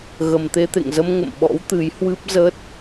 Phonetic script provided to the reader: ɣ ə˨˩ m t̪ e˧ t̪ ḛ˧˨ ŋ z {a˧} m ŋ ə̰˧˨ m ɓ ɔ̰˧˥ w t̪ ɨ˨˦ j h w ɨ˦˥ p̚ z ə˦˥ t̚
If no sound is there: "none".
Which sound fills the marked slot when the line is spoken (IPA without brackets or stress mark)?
ə˧